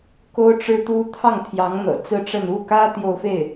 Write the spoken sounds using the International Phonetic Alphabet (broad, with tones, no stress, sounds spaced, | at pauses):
k o˥ ʊ̯ ʈ͡ʂ ɻ̩˥ t̪ u˥ t̪ʰ ɑ˥˩ ŋ t̪ʰ j ɑ˧˥ ŋ n̪ ɤ̰˨˩ t͡s ɹ̩˥˧ ʈ͡ʂ ə˥˧ n u˥˩ k ä˥ t̪ j o˥˧ ʊ̯ f e˥˩ ɪ̯